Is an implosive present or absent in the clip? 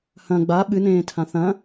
present